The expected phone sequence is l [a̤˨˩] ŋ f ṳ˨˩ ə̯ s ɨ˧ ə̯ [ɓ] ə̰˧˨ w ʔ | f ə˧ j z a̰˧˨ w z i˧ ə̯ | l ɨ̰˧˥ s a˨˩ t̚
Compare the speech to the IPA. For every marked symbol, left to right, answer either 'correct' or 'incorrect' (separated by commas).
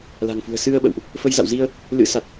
correct, correct